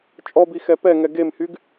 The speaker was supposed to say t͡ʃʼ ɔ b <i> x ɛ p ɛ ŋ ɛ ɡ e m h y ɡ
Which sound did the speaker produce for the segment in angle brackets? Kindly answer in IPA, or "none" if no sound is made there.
i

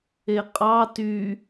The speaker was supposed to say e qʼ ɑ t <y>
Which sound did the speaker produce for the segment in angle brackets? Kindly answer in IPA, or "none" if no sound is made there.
y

